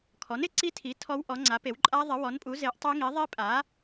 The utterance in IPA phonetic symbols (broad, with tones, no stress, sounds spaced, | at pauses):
kʰ ɔ˩˥ n ɪ˩˥ ǀ i˦˥ tʰ i˩˥ tʰ ɔ˦˥ w ʔ ɔ˩˥ ŋ͡ǀ a˩˥ p e˩˥ w ǃʼ a˦˥ ðˤ ɪ˩˥ w ɔ˩˥ n pʼ u˩˥ z e˩˥ ʔ tˤ e˦˥ ŋ i˩˥ ðˤ i˦˥ pʼ a˩˥